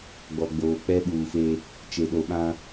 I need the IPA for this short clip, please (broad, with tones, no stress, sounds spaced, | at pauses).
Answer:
ɡ͡b ɔ˨ ɡ͡b oː˨ k͡p ɛ˦ ɓ uː˨ f e˦ | t͡ʃ e˨ ɗ o˨ ɓ ã˦